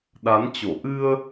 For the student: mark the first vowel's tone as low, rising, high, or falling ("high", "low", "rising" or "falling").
rising